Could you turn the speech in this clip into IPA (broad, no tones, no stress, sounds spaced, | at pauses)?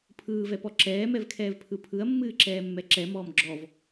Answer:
pʰ ɯː v ɛ p ɔ ǁ ɛː m ɛ v kʰ ɛː v pʰ ɯ pʰ ɯ ɐ̯ mː ɨː ǁ ɛː mː ɛ ǁ ɛ m ɔː m ɡ͡ǁ ɔ v